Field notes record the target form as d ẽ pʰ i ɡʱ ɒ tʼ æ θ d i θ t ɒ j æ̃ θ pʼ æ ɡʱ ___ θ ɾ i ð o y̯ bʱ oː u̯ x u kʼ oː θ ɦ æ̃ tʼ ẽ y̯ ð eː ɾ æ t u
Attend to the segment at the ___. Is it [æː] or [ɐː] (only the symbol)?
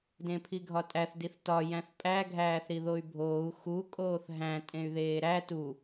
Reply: æː